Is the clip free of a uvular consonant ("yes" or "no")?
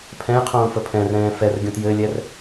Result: no